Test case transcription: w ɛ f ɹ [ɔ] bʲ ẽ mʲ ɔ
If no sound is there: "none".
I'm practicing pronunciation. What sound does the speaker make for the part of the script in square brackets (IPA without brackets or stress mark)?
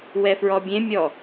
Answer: ɔ